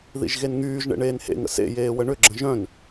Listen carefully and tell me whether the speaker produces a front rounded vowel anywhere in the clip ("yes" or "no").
yes